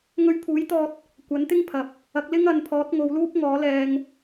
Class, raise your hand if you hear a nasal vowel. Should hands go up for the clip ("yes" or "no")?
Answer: no